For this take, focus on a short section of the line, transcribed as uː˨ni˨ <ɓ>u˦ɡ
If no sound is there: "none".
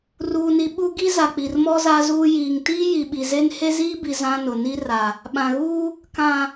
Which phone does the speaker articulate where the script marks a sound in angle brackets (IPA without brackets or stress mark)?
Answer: ɓ